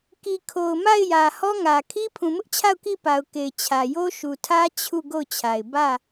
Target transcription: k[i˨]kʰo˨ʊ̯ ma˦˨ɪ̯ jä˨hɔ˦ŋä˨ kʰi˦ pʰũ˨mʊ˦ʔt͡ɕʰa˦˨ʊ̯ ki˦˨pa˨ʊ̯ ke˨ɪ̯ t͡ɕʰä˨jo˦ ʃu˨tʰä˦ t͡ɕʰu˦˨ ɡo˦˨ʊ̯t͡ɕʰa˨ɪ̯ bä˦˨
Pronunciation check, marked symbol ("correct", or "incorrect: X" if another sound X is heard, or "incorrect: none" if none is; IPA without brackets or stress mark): correct